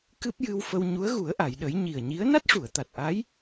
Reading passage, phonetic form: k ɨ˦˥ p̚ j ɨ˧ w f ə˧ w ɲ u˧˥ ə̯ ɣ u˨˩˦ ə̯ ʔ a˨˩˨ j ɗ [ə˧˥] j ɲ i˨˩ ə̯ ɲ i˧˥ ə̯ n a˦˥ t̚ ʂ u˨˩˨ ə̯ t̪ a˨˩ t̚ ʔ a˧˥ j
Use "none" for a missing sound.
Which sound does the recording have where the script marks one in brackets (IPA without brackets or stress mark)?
ə˨˩˦